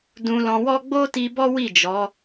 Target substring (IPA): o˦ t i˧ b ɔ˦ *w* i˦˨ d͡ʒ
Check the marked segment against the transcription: correct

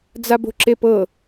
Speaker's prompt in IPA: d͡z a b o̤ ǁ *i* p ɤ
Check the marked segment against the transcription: incorrect: e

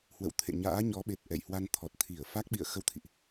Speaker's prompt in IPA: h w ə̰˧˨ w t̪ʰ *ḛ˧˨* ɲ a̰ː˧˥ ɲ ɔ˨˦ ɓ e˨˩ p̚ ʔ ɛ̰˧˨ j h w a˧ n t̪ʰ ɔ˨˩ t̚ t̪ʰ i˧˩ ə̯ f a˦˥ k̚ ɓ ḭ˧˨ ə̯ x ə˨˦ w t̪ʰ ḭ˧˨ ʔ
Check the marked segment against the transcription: correct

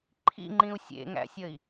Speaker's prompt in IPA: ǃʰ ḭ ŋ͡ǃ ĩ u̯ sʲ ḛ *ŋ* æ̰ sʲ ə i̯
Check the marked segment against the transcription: correct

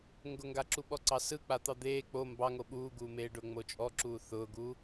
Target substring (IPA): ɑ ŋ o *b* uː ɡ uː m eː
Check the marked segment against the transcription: incorrect: ɓ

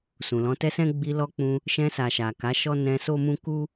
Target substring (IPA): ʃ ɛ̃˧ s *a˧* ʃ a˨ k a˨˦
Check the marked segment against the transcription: incorrect: a˨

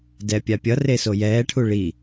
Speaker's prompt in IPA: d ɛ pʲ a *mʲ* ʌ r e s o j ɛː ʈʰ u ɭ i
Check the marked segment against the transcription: incorrect: pʲ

